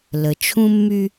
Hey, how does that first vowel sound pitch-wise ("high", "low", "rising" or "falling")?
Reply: low